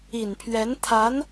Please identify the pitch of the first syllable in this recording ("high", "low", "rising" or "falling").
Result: low